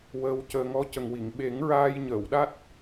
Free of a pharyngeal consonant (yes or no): yes